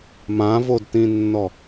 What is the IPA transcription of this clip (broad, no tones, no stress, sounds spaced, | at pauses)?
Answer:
m ã v o d t ĩ nː ɔ